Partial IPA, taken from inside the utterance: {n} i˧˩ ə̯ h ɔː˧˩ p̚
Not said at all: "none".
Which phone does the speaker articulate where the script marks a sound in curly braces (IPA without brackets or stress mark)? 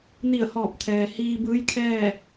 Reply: n